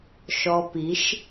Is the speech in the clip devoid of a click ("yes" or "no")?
yes